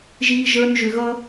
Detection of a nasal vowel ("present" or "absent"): absent